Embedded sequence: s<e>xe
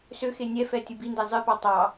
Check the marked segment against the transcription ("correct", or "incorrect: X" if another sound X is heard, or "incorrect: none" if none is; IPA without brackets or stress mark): incorrect: ø